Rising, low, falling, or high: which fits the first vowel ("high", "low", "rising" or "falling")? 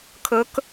rising